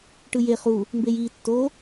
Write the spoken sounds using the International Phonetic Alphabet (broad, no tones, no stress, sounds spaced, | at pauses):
ʈ ɯ j e χ u | m b eː j iː tː o